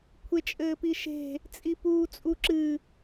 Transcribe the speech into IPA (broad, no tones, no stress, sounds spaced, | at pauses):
kʷʰ e t͡ʃʼ ɘː p i ʃ e̤ | t͡sʼ i p uː t͡sʼ u ǁ ɨ